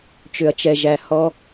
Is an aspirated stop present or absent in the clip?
absent